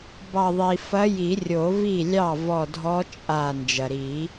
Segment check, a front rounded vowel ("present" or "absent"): absent